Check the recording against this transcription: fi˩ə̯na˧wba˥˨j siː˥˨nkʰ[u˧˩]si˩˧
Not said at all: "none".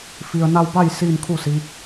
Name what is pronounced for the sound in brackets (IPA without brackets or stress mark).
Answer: u˥˨